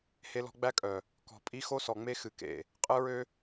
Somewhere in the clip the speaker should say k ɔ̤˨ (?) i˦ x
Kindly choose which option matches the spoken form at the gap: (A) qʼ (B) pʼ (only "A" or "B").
B